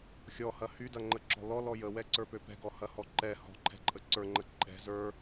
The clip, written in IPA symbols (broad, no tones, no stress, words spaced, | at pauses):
xʲɔhɐ hydɐŋ͡ǃəǁɔ̤ lɔlɔ jəwɛǀə˞pø pɛ̤ɡɔhɐhɔ ǃɛ hɔ̤ǃʰɛ̤ǃʼə ǀə˞ŋ͡ǃə ǃʼɛ̤ zə˞